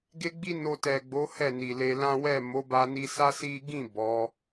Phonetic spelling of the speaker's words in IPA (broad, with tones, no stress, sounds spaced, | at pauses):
ɡ e˦ ɡ͡b i˦ n o˧ t ɛ˨ ɡ͡b o˨˦ h ɛ˦˨ n i˨ l e˧ l ã˦ w ɛ˦˨ m o˨˦ b a˧ n i˧ s a˦ s i˦ ɡ ĩ˦˨ b ɔ˨˦